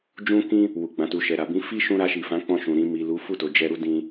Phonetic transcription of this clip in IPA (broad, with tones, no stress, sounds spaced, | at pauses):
d͡ʒ ũ˦ k ĩ˦ | w u˨ ɡ͡b ã˨ t u˨ ʃ ɛ˨ ɾ a˨ b ĩ˨˦ f i˦ ʃ ũ˧ ɾ a˧ ʃ i˨ f ã˨˦ k͡p ɔ̃˧ ʃ ũ˨ ɾ ĩ˨ m i˨ l u˨˦ f u˦˨ t o˨ d͡ʒ ɛ˧ ɾ u˦ d ĩ˧